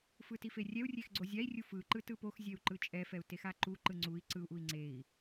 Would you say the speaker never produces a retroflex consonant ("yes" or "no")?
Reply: yes